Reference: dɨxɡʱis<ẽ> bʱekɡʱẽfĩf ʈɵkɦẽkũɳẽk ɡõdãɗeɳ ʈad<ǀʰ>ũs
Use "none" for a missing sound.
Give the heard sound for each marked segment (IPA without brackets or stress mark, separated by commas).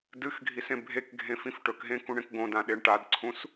ẽ, ǀʰ